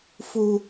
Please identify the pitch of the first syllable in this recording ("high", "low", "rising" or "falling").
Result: low